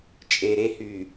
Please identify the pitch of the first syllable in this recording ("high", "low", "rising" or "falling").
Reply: low